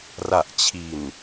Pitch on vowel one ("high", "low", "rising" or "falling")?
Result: low